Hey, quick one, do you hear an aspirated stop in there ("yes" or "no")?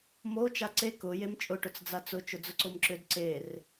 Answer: no